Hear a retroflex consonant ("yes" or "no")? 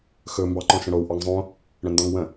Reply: yes